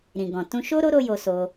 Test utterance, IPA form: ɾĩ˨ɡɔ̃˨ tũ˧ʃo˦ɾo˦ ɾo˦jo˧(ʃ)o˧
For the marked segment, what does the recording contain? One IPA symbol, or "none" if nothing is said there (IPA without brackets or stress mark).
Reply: s